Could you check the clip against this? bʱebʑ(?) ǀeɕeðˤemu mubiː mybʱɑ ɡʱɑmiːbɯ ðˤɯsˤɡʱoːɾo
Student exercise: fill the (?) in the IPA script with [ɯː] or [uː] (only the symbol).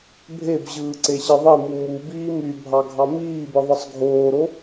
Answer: ɯː